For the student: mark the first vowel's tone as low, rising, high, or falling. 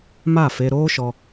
falling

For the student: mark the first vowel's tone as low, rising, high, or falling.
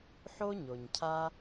high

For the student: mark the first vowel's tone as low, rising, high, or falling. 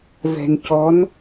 low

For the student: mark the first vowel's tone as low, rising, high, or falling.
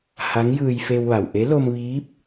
rising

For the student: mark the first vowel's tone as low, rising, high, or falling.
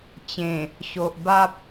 low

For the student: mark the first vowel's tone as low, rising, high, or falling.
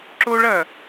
high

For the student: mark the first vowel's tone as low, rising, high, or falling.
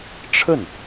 falling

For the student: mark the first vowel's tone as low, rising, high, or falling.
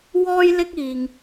high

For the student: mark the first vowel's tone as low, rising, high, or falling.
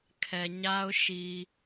low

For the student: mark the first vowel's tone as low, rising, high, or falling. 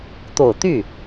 low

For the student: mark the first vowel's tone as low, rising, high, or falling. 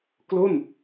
falling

